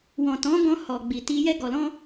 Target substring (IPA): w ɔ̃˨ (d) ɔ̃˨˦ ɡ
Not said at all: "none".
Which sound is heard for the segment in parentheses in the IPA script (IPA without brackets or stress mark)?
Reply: t